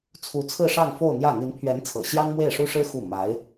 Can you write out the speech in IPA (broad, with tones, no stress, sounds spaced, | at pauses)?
t͡sʰ u˧˥ t͡sʰ ɹ̩˥˧ ʂ ɑ˥˧ ŋ f o˥˧ ʊ̯ n̪ j ä˥˩ n̪ i˧˥ n pʰ ɥ ɛ˧˥ n t͡sʰ ɤ̰˨˩ ɕ j ɑ˥ ŋ m w e˥˩ ɪ̯ ʂ u˥ ʂ ɻ̩˥ x u˥˩ m a˧˥ ɪ̯